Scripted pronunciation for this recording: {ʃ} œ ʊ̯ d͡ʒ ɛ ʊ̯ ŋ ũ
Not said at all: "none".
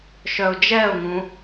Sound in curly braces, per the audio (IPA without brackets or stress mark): ʃ